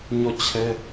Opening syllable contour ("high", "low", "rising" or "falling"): falling